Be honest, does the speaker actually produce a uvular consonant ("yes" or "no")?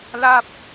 no